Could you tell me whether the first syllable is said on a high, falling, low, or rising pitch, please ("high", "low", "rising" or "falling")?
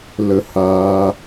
high